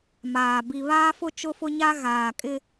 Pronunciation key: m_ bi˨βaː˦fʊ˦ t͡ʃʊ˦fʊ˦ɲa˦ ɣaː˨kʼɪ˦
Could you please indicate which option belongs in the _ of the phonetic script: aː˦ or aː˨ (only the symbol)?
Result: aː˨